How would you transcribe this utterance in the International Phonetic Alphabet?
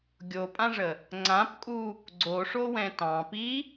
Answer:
ɡʲ o pʼ ã ʐ ə | ŋ͡ǀ ã p kʼ u | ɡ͡ǀ o ʂ o w ɛ̃ t ɑ̃ p i

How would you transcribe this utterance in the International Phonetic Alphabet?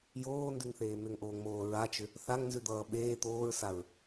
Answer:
j oː n d ʉ ŋ θ eː m ʏ ŋ ʔ oː ŋ m oː ɹ a t͡ʃ ʏ | θ a ŋ n z ʉ d̪ ʌː ɓ eː t̪ oː ɹ s a ɹ

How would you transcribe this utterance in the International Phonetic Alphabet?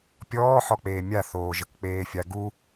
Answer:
pʲ ɔː ħ ɔ k͡p eː mʲ a θ oː ʒ ə k k͡p eː fʲ a ɡ u

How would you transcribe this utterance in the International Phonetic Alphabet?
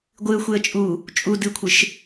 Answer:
ɡʷ ɨ ə̯ xʷ e ə̯ t͡ʃʼ u | t͡ʃʼ u d ɨ kʷʰ ɨ ʃ

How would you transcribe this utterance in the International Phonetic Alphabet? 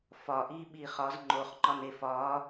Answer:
f ɒ ʔ iː ɓ iː χ ɒ z ŋ͡ǃ o χ ŋ͡ǃ ɒ n e f ɒː

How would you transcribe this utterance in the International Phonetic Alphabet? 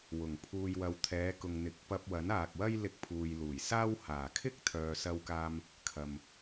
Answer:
w ʊ˨˩ ŋ pʰ uː˨ j w ɐ˨ w t̪ʰ ɛː˨˧ k ʊ˨ ŋ n̪ ɪ˨˥ k̚ p ɐ˧ p̚ w ɐ˨˥ n aː˨ k̚ w ɐ˥ j l ɪ˧ k̚ pʰ uː˨ j l uː˨˩ j s aː˥ w h aː˨˩ kʰ ɪ˥ k̚ t̪ʰ œː˨ s ɐ˧ w k aː˧ m | kʰ ɐ˨ m

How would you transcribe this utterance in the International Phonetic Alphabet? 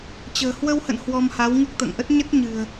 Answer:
t͡ɕ ə̤ː˨˩ h w ə˧ w h ə̰˧˨ n h w ɔ˧ m h a˨˦ w ŋ ɨ˦˥ k̚ t̪ ə̰ː˧˨ ŋ ʔ ə˦˥ t̚ ɲ ə˦˥ t̚ ɲ ɨ̤˨˩ ə̯

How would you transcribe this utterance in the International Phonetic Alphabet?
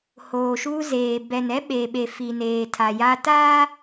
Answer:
h oː˨ ʃ uː˦ z eː˨ b ɛ˨ n ɛ˦ ɓ e˨ ɓ e˨ f i˨ n eː˨ tʰ a˨ j a˦ t aː˦

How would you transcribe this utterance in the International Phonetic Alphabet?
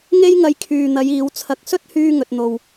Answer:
ŋ e˥ j ŋ ɐ˧ j kʰ yː˨ n̪ ɐ˨˧ j iː˨˧ w t͡sʰ ɐ˧ k̚ s ɵ˥ t̚ h yː˧ ŋ ɵ˨ t̚ n̪ o˨ w

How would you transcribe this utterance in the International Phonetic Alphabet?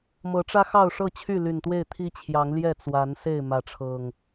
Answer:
m ɤ˨˦ ʈ͡ʂ ä˦ x ɑ˥˨ ʊ̯ ʂ ɤ˥˨ t͡ɕʰ y˥˨ l y˨˩ n t̪ w e˥˨ ɪ̯ t̪ʰ i˦ t͡ɕʰ j ɑ˨˦ ŋ l j ɛ˥˨ t͡s w a˨˦ n s e˥˨ ɪ̯ m ä˨˦ ʈ͡ʂʰ ɤ˨˩ ŋ

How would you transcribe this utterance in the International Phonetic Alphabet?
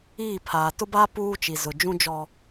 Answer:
iː˦˨ pʰ aː˨ t ʊ˦ b aː˦ p uː˦ t͡ʃ i˨ z ʊ˨ d͡ʒ ũ˦ d͡ʒ ɔ˦

